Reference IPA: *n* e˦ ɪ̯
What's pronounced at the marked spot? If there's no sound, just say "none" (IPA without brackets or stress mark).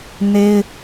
n